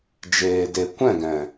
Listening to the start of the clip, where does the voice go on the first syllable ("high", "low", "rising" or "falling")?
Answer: low